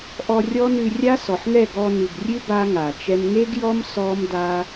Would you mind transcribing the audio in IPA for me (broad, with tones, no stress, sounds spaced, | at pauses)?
ʔ ɔ˧ rʲ ɔ˦ n ʉ˧ rʲ a˦ s ɔ˨ ħ ŋ ɛ˦˨ ɡ ɔ˧ n ʉ˨ ɡ rʲ ʉ˦ b a˦ ŋ a˨ t͡ʃ ɛ˦ m ŋ e˦ ɡ j ɔ˦ m s ɔ˦ m d a˦